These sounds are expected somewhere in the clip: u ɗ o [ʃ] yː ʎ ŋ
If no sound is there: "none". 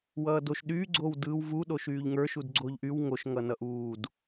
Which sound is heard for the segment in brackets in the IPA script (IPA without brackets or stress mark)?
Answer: ʃ